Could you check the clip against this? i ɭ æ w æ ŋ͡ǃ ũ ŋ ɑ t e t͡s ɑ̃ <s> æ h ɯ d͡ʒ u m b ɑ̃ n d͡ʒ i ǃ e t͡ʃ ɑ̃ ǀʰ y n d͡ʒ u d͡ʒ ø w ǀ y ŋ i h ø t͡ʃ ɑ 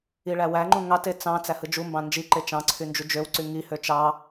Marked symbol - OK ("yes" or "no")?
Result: no